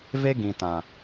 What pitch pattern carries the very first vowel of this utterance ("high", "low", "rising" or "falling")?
high